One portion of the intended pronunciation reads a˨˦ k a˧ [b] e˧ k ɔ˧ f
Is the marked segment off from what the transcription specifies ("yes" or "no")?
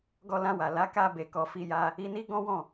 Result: no